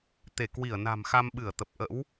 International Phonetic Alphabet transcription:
t̪e˧˩kwi˧˩ə̯na̤˨˩mxa˧m ɓɨ˧˩ə̯t̪ə˨˩p̚ʔə̰˧˥w

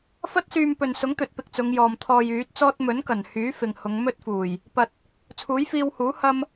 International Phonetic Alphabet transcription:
fɐ˥t̚syː˧m pɵ˨nsʊ˨˥ŋt̪ɵ˨t̚pɪ˨k̚ t͡sʊ˨˧ŋjɔː˨m t̪ʰɔː˧jyː˨˥t̚t͡sɔː˥t̚ mɵ˨˥nkɐ˨˩nhyː˨˥ fɪ˨ŋ hʊ˨˧ŋmɵ˥t̚ fuː˨˩j | pɐ˨t̚ | t͡sʰuː˨˥jfiː˧whuː˨˥ hɐ˥m

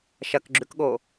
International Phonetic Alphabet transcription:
ʃɐkɡ͡ǁʉkɠo

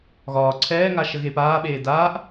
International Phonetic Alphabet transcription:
ɣɒː ǀʰɛːŋa ʃəɣepaːɓeː daːʔ

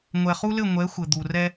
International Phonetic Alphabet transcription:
ŋʷɛ˨χu˦lɘ˦˨ ŋʷɛ˨˦ xʷɘ˨d̪u˨ rɛ˦

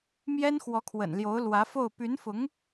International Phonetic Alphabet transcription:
mjɛ˥nxwɔ˧˥kʰwə̰˨˩n ljo˧˥ʊ̯ lwä˧˥fo˥˩ʊ̯ py˧˥nfʊ˧˥ŋ

